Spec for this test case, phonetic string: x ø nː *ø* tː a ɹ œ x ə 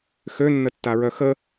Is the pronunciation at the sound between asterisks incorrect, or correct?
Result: incorrect